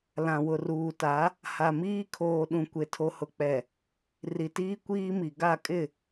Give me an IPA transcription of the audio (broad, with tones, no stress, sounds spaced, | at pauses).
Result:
l ã˨ w ʊ˨ r uː˨ t a˨˦ | h a˨ m iː˦ kʰ oː˨ ɗ ũ˨ kʷ e˨ tʰ o˨ h ʊ˨ k͡p ɛ˨ | r i˨ t iː˦ kʷ iː˦ m i˨ ɡ a˦˨ kʼ ɪ˦˨